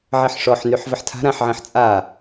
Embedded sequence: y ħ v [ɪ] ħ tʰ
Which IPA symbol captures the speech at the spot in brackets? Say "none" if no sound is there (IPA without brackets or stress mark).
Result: ə